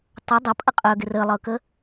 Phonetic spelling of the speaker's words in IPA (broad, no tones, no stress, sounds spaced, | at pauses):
tˤ ɐ dˤ ɐ pʼ ə qʼ œ ɡ ɪ r ə lˠ ɤ k ə